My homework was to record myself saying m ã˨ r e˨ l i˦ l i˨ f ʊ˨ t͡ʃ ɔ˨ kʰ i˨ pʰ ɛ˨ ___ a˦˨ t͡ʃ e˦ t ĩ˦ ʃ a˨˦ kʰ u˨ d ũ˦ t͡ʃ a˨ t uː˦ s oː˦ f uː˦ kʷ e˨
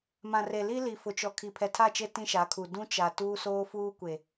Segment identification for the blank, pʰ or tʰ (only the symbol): tʰ